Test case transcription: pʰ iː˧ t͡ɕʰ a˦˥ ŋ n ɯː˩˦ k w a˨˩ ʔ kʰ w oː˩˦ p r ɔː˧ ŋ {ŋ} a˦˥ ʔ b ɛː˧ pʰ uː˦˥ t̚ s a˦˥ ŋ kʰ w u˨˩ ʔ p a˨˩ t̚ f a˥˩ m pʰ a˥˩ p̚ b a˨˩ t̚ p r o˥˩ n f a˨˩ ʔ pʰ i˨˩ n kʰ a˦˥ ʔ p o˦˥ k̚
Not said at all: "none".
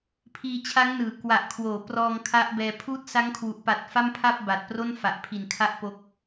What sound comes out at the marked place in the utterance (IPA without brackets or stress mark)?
kʰ